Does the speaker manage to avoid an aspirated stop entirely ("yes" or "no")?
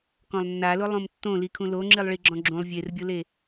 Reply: no